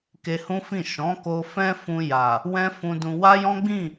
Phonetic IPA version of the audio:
k e˧ h ũ˦ f ĩ˦˨ ʃ ɔ̃˨˦ k o˧ f ɛ̃˦ f ũ˧ j a˨ | w ɛ̃˦ f ũ˧ d ũ˧ w a˦ j ɔ̃˦ ɡ͡b ĩ˦˨

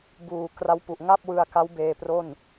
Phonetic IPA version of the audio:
b uː˨˩ k r a˦˥ w p u˨˩ ʔ ŋ a˥˩ p̚ w ɯ˧ a̯ k a˦˥ w b eː˧ p r o˥˩ n

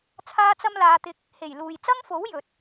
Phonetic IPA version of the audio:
t͡sʰ aː˥ t͡s ɐ˥ m l aː˨˧ t̪ ɪ˧ k̚ | h e˨˩ j l uː˨ j t͡s ɐ˥ ŋ f o˨˥ w j ɵ˨ t̚

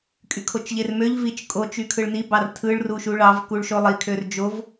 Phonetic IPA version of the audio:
kʼ y kʰ o t͡ʃ ʎ e r m ø ʎ v i t͡ʃ kʼ o t͡ʃ y kʰ ɯ ɭ n i b ɑ r tʰ ɯ ɭ r u ʃ u ɭ ɑ v k u ɭ ʃ o lˠ i kʰ ø r d͡ʒ o v

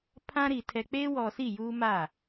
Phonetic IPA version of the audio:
pʰ ã˦ ɾ i˨ tʰ ɛ˨ k͡p e˦ w ɔ˨ s i˦˨ j uː˦ m a˦˨

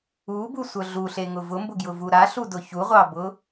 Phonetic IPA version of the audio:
u b u sʷ œ ɮ u ɬ e ŋ ʊ v ʊ m b ʊ ɡ j ʊ v u ɾ a ɬ u d ʊ ç u ʁʷ ɑ b ʊ

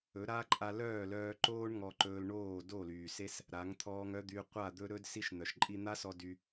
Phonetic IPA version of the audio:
ɵ˨˦ ɾ a˦ ǃʼ a˧ l œː˦˨ l œː˧ ǃ oː˦ ɳ ŋ ɔ˧ ǃ ɵː˧ l ɳ oː˦˨ d o˦˨ l yː˨ s e˦ s | ɾ a˨˦ ŋ t̪ʰ ɔː˧ ŋ œ˦ d̪ y˧ qʷ a˦˨ d̪ ɵ˦ ɾ ɵ˦ d s i˧ ʃ n̪ œ˨ ʃ ǃʼ i˧ n̪ a˦ s ɔ˧ d y˧

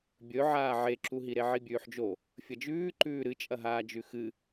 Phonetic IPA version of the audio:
bʲ ɵ ʕ aː ʕ e ǁ u ɦ i ɾ e ʕ i bʲ ʉː ħ d͡ʒ o | fʲ ɐ d͡ʒ ʉː ǃ ʉː ɾ ɨ t͡ʃʼ ɐ ɦ aː d͡ʒ ʉ x ɨ

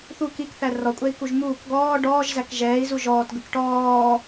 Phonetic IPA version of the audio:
θ u k i k θ æ r ɔ kʷʼ ɛ i̯ k u ʒ m uː k ɡ ɔː ɖ ɔː ʒ z æ k ʒ ɛː i̯ z u ʒ ɔː t ɡ ə k ʈ ɔː

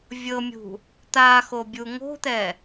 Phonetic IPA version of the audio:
vʲ ɤ mʲ ṳ | t̪ a x o bʲ u ŋ o̤ t̪ ɛ

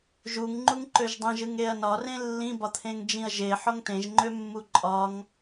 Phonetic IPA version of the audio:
ʒ u ŋ ŋ͡ǃ u ŋ ǃ ø ʒ dˤ ĩ ʒ ɯ ŋ e ɐ̯ n ɒ r ẽ lː ĩ b ɒ t̪ʰ ẽ ŋ d͡ʒ ĩ ɐ̯ ʒ e ħ ɔ ŋ t ẽ ʒ ŋ͡ǃ ø mː u ǃʼ ɒ ŋ

